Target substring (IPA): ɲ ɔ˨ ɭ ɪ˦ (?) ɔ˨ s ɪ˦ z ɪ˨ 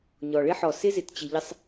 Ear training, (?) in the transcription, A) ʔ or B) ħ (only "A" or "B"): B